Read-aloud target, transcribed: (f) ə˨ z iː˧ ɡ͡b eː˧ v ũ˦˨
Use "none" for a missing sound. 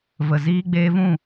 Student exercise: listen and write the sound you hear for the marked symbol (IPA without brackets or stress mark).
v